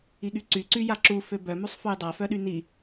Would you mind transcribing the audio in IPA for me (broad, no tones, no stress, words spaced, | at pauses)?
iɠyǀy ǀyjaǁu føbœ musˤfujdˤa fœɗyni